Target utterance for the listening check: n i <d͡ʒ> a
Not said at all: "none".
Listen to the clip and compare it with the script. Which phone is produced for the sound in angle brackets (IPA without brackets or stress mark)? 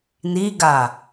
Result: ɡ